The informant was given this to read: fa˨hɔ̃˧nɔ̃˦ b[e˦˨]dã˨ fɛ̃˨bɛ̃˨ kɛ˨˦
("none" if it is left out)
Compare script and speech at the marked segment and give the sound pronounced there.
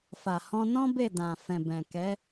e˦˨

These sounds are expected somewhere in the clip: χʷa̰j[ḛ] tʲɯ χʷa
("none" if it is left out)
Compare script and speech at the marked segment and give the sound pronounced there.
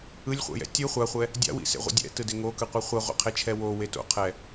ɛ̰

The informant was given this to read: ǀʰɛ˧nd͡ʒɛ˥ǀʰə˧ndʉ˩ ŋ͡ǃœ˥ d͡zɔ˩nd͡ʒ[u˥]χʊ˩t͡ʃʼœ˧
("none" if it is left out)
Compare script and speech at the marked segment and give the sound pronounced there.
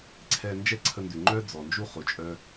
u˥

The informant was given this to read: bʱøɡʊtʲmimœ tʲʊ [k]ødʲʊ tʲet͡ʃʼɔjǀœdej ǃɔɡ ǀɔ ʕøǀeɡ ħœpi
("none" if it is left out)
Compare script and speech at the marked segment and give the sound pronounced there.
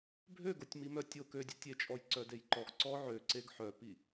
k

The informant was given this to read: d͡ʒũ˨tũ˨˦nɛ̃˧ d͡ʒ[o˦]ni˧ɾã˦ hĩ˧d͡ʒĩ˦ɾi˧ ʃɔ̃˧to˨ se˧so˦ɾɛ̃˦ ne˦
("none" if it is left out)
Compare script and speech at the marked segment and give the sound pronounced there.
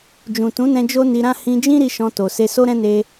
o˦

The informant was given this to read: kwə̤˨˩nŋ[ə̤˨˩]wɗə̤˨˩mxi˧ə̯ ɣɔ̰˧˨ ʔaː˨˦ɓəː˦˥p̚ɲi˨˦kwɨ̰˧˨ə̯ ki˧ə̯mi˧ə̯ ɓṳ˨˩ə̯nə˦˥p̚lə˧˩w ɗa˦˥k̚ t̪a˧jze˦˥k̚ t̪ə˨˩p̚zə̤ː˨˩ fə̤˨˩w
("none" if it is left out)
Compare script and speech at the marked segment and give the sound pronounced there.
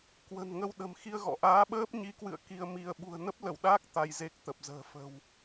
ə˧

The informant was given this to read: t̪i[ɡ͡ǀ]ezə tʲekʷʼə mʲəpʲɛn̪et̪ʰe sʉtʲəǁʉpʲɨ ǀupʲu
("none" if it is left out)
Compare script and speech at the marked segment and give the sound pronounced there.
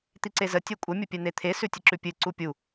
ǀ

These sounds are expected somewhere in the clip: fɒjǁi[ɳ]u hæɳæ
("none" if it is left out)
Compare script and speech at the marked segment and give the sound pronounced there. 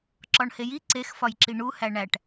ɳ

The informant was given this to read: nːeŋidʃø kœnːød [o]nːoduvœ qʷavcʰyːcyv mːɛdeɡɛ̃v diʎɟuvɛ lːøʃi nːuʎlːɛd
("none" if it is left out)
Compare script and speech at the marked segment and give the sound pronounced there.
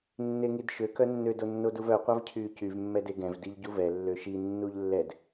o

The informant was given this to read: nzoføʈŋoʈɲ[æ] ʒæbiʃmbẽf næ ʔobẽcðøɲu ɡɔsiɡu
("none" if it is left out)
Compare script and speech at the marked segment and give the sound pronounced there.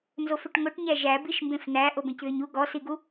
æ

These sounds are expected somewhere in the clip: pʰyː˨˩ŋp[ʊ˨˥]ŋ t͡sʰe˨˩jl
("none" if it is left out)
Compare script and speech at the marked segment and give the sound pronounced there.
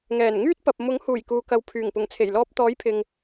ʊ˨˩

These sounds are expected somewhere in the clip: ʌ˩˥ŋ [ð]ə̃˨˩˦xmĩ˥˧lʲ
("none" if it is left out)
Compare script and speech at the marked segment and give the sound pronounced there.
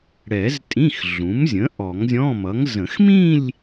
z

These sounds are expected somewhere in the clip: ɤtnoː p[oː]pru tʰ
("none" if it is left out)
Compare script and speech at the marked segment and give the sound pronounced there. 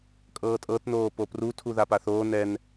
o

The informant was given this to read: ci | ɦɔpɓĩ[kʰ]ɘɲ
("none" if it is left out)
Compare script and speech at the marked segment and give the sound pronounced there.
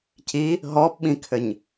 kʰ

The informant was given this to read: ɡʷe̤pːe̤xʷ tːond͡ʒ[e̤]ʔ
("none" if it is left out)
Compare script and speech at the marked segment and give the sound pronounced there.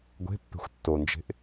e̤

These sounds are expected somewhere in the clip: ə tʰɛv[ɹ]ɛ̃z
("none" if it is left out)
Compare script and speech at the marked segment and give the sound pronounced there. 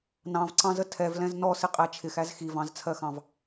l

